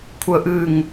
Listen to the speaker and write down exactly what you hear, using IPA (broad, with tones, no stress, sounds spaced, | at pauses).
kʷʰ ə˦ ʔ ɨ˦˨ ŋ